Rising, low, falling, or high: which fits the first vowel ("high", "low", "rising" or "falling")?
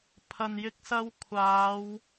low